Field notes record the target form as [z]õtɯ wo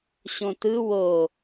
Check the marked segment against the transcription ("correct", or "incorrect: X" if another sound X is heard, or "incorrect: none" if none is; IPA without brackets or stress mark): incorrect: ɕ